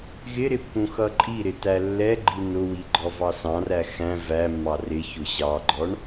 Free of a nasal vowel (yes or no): no